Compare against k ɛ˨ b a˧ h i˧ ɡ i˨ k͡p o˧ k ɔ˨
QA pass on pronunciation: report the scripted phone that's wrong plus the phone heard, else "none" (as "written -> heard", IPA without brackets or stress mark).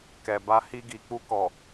o˧ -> u˧